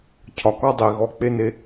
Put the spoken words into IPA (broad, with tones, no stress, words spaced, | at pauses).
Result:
cʰɒ˩˥kɒ˥ dˤi˩ɣɔ˧k͡pe˥ne˧